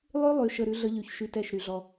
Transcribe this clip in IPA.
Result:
lˠ y˦ lˠ y˨ ʃ ə˨ ɾ ʉ˦ ɮ ə˦ ʎ y˨ ç ʃ y˦ t ɛ˦˨ ʃ ɾ y˨ ɮ ɔ˦

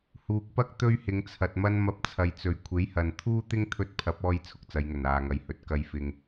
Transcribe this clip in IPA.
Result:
h uː˨ k̚ p ɐ˥ k̚ t̪ ɵ˥ ɥ h ɪ˨˧ ŋ t͡sʰ ɐ˨ t̚ m ɐ˥ n m ɐ˧ p̚ t͡sʰ ɐ˨˧ j t͡s ɵ˨ ɥ kʷʰ e˨˥ j h ɐ˨ n t̪ʰ uː˥ t̪ ɪ˥ ŋ t̪ʰ ɵ˥ t̚ pʰ ɐ˨˥ p̚ ɔː˧ j t͡sʰ ʊ˧ k̚ t͡s ɐ˨˧ j ŋ ɵ˨˩ n aː˨ ŋ ɐ˨ j h ɵ˨˥ t̚ k ɐ˧ j f ɪ˧ ŋ

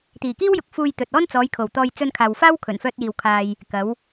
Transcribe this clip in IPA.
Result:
t̪ iː˨˩ k iː˥ w j ʊ˨ k̚ f uː˧ j t̪ ɵ˨ t̚ ɔː˥ n t͡s ɔː˨˧ j kʰ o˨˩ w t̪ ɔː˧ j t͡s ɵ˧ n kʰ aː˨ w f aː˥ w kʰ ɵ˨˩ n f œː˧ t̚ j iː˨ w kʰ aː˧ j | k ɐ˨˧ w

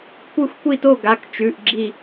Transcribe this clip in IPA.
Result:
kʷ ɨ˥˧ xʷ kʷ i˥˧ t o˥˧ ɡ a˧˥˧ k t͡ʃ ʉ˧˥˧ ʔ ɡ͡ǁ i˥˧

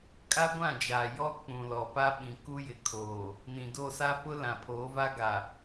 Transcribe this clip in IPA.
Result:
kʼ a˦ ɡʷ ã˦˨ d͡ʒ aː˨ j ɔ˦ k͡p ũ˨ l ɔ˨ p a˦ ɓ ĩ˨ k u˦ j ɪ˨ kʰ oː˨ | n ĩ˨ d o˦˨ s a˦ p ʊ˦ l ã˨ pʰ oː˨˦ v a˦ ɡ a˨

